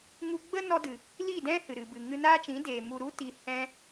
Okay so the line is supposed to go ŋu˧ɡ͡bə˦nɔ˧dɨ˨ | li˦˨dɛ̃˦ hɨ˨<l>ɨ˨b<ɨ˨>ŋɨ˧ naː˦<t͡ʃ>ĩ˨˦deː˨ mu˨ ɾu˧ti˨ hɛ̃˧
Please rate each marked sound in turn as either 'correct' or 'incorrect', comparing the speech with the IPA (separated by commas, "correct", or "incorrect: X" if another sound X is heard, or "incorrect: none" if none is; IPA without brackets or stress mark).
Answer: incorrect: ɾ, correct, correct